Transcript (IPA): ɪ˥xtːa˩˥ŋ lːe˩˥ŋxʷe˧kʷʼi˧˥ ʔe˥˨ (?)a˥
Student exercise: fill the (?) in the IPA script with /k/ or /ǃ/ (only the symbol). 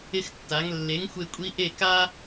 k